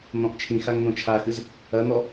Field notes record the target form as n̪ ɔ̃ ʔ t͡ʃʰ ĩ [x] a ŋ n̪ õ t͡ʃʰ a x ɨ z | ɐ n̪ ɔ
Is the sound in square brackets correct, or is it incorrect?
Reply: correct